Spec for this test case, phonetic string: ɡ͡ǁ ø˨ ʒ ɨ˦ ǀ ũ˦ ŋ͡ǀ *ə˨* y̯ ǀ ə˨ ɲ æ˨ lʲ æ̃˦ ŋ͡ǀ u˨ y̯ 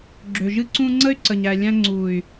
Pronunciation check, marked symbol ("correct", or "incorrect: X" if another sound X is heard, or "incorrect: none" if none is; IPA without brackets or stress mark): incorrect: ə˦